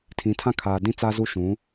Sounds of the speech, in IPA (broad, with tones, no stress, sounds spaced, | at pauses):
tʰ ĩ˨˦ tʰ ã˦ kʰ aː˨ d ĩ˦ t͡s a˦ z u˦ ʃ ũ˨˦